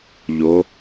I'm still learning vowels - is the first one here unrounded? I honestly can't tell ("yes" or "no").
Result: no